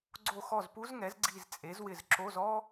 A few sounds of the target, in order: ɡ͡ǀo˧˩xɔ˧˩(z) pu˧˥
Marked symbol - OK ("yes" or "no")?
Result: yes